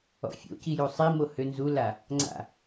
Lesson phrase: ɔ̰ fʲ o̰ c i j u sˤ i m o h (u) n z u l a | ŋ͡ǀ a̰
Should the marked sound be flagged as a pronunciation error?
yes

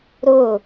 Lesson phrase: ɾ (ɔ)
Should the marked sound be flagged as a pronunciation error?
yes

